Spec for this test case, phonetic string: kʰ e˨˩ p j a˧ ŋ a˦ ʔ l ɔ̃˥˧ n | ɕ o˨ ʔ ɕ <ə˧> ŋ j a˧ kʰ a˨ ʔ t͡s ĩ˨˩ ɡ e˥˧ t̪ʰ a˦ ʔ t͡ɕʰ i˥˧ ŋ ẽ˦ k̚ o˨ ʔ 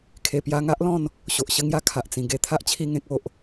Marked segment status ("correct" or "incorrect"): correct